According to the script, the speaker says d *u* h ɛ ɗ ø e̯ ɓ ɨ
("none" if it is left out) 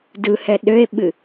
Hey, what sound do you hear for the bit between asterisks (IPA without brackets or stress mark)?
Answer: ɯ